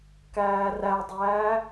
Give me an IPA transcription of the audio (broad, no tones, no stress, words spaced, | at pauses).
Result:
kæːrædˤæː